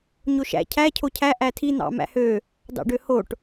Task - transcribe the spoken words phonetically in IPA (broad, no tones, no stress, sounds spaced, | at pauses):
ɲ o ʃ æ̰ cʰ æ cʰ o cʰ æ ʔ æ tʰ i n̪ ɑ̰ m æ̰ h ø | d ɑ̰ ɖ ø h o ʈ